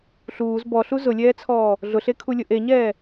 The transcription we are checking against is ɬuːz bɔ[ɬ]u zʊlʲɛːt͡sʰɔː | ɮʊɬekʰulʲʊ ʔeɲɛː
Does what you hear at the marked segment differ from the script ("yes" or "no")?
no